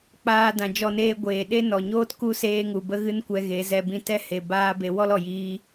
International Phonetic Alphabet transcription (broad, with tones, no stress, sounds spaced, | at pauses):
k͡p aː˧ d ã˨ d͡ʒ ɔ˧ n eː˧ ɡʷ eː˨ ɗ e˦ n ɔ˨ ɲ oː˦ t k u˦ s eː˧ ŋ u˨ b ə˦ ɣ ɨ˦ n kʷ ɛ˧ ɣ e˨˦ z ɛ˧ b ĩ˧ t ɛ˦ h e˨ b aː˦ b e˧ w ɔ˦ l ɔ˨ j iː˧